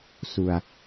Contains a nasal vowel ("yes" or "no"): no